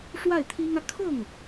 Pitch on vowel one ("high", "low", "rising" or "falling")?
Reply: falling